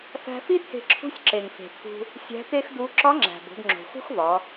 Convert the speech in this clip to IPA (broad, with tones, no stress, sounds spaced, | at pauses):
f æ̤˧ f i˥ t̪ʰ e̤˧ ǁʰ ṳ˧˥ sʲ ǁ e˩ ŋ f e̤˩ t̪ʰ ṳ˧ | sʲ æ̤˧˥ t̪ e˥ x d u˧˥ ǁ ɒ˧˥ ŋ͡ǁ æ̤˩ b o̤˩˧ d ŋ͡ǁ o̤˩ x ṳ˥ x v ɒ˩˧